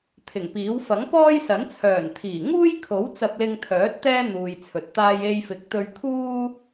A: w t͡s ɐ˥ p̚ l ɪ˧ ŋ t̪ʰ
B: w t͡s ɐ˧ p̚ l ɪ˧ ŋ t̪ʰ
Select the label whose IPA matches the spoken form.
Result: B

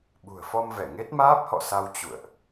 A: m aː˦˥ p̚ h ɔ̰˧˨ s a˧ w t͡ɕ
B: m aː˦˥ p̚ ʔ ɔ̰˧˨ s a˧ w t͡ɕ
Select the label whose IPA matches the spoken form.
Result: A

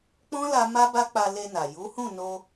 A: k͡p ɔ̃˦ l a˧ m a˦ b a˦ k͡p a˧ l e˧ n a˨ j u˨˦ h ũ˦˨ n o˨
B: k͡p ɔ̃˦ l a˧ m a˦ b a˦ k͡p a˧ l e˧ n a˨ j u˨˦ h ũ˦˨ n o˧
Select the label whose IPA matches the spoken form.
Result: B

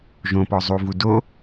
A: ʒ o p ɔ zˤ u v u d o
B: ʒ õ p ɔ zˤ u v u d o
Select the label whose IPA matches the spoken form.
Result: B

